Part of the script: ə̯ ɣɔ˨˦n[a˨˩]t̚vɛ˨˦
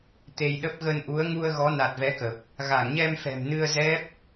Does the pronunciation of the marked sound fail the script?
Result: no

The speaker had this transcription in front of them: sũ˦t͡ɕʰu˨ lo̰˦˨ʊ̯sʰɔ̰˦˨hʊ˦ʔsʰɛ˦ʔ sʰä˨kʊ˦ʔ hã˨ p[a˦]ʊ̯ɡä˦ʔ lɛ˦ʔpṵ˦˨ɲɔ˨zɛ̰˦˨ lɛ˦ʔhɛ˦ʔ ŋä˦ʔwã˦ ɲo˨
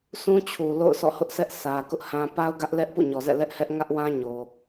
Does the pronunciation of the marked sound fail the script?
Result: no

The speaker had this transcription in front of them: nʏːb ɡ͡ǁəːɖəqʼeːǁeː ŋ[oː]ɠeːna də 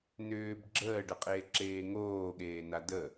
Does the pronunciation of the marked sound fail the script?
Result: no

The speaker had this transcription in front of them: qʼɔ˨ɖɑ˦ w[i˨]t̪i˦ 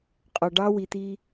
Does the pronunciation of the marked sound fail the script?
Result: no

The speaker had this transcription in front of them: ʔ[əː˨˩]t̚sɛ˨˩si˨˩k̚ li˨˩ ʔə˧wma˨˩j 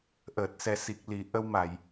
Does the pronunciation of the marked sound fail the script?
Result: no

